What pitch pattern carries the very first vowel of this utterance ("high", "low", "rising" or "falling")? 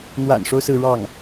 low